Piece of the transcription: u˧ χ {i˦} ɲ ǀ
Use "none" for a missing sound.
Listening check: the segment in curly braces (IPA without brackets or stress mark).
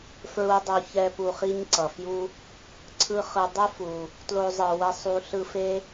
i˦